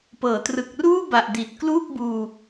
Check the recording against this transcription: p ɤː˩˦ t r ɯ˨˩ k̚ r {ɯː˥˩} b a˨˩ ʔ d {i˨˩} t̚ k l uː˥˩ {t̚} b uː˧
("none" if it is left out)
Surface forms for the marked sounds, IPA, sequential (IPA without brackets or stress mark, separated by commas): uː˥˩, i˨˩, k̚